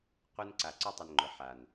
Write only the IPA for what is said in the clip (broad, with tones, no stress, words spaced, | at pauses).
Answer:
qʷɨ˧n ǀa˨ǀʊ˧tˤʊ˨n ŋ͡ǃʊ˨ ħa˨n